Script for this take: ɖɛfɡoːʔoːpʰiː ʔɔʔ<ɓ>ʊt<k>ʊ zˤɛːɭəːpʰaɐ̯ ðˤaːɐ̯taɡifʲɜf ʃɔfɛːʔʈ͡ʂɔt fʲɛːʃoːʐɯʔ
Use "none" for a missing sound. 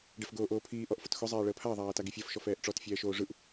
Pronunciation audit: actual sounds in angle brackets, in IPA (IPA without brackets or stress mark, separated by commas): f, x